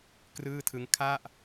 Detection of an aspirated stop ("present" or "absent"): present